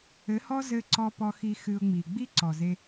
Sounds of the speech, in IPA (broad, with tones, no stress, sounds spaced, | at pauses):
ɘ˨˦ h ɔ˦ z ɘ˧ ǀ ɔ˧ p ɔ˧ x i˧ x ɨ˧ ʊ̯ ŋ͡m i˨ ɡ͡b i˦ ǀ ɔ˨ z e˧